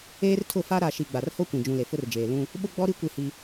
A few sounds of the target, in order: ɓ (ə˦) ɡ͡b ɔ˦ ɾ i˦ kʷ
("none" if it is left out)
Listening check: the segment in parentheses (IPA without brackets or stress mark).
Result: ʊ˦